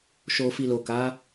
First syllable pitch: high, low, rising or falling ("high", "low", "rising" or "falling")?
low